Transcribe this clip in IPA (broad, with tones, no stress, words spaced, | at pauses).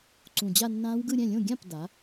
ǀũ˨˩d͡ʑa˥˧nːãː˦˥wɡɯ˥˧ ɾʲɛ̃˥˩lʲõ˥˩ ɡʲã˥˩p da˩˥